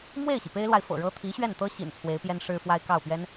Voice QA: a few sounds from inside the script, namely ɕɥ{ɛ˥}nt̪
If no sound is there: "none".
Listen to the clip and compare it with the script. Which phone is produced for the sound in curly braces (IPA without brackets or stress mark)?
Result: ɛ˥˩